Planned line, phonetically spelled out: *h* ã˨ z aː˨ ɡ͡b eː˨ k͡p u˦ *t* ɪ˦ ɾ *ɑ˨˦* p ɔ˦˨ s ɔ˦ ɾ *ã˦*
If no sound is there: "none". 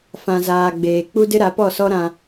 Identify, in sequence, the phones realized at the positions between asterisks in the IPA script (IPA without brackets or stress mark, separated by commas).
f, d, a˨˦, ã˦